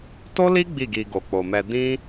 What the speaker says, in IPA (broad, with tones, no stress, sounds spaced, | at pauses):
t o˦ l i˦ ɡ͡b i˦˨ ɡ i˧ ɡ o˨ k͡p o˨ m ɛ˧ d ĩ˦